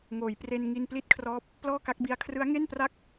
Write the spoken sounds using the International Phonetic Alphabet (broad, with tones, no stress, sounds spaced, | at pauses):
ŋ oː˩˦ j p r e˧ n ŋ i˧ n p l i˥˩ t̚ kʰ r ɔː˦˥ p̚ | p l ɔː˥˩ k a˦˥ k̚ b i˦˥ a̯ kʰ r ɯ˦˥ a̯ ŋ e˥˩ n p r a˥˩ k̚